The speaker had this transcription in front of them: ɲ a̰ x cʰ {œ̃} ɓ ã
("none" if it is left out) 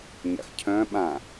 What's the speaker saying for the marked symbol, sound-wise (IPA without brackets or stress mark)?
œ̃